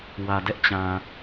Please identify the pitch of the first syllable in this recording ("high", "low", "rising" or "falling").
low